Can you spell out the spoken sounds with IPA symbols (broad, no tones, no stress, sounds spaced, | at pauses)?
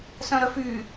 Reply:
s œ̃ ɾ œ f y